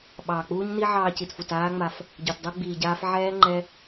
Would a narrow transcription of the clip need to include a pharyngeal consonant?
yes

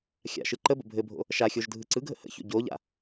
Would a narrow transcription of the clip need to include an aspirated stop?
no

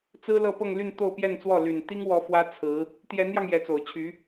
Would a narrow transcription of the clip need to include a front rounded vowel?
yes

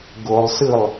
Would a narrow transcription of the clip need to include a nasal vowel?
no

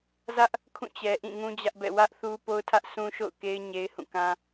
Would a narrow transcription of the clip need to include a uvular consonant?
no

